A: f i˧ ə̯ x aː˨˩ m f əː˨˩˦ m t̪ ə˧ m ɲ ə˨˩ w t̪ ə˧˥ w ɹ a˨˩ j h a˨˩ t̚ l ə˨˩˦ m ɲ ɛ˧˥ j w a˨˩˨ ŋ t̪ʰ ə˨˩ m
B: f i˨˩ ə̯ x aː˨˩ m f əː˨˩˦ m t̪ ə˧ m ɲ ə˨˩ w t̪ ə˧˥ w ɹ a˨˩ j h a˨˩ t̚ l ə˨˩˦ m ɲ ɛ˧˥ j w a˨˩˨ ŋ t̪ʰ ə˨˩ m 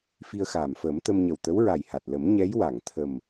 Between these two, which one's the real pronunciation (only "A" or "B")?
A